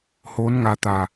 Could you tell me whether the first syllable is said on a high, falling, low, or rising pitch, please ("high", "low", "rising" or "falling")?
rising